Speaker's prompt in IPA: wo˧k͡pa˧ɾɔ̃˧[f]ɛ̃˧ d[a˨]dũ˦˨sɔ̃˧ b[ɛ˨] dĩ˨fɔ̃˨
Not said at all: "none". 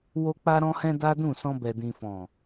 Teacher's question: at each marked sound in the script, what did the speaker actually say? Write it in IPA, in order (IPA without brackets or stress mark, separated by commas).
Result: h, a˦, ɛ˨